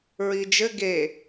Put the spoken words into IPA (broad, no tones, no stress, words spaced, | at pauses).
ɹid͡ʒɘ ɡe